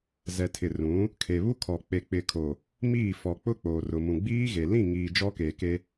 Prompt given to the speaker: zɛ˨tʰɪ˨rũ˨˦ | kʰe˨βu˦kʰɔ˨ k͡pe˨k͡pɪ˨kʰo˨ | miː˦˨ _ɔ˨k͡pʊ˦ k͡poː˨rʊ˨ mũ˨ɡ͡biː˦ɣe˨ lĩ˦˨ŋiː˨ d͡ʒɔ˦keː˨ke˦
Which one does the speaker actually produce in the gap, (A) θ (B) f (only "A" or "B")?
B